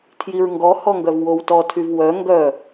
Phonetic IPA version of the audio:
tʰ j i ɹ ŋ ɡ ɔ h ɔ ŋ ɡ œ v w o w t ɔ tʰ y v w œ ŋ ɡ œ

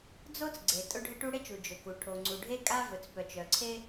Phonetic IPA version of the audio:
d͡z o˥ t͡s ɡ͡ǀ e˩ tʼ ʊ˥ ɖʱ ɘ˥ ʈ u˥ ɽ e˥ t͡ʃ u˩ d͡ʒ ɵ˩ k u˩ ʈʰ o˩ ŋ͡ǀ u˩ ɖʱ e˥ kʼ a˥ v ɵ˩ t͡s p œ˩ t͡ʃ œ˩ ǀʰ e˥

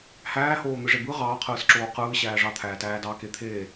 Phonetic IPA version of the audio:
h æː h oː n̪ ɯ ʐ e b ɯ ʁ ɑː qʰ ɯː s ǁ oː q ɯː ɕ æː ʐ ɑ t̪ʰ æː t æː d ɑ k e t̪ʰ eː

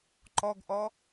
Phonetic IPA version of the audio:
ǃ ɔ ɡ ʔ ɔ

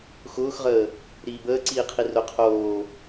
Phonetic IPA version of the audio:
x ʊː x ʁ əː | ɾ iː b əː ǀ iː qʰ i r ʊ qʰ oː

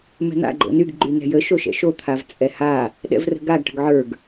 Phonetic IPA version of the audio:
m ɛ̤ n̪ a̰ ɡ͡ǃ o̰ n y ɡ ɡ͡ǃ y n ɛ̤ j ə ʃ o ʃ ɛ̰ ʃ o t̪ʰ a v t͡sʼ ɛ h a | ɗ ɛ̰ v r ə̤ ɡ a ɡ ʈ ə̤ ɡ ʕ ə˞ ɡ

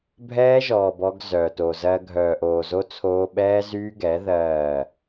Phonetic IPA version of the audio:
bʱ ɛː˦ ʒ ɔː˨ b ɔ˦ ɡ z œ˨ t oː˨ z ɜ˦ ɡʱ œː˨ ʔ oː˨ z o˦ t͡sʰ oː˦ ɓ ɛː˦ z yː˦ ɡ ɛ˨˦ ð ɜː˦˨

